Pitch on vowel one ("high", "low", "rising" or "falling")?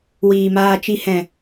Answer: low